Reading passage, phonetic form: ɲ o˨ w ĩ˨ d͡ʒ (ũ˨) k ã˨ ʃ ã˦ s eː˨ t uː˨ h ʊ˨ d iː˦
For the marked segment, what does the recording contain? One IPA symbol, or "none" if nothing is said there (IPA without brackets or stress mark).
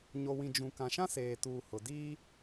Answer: ũ˨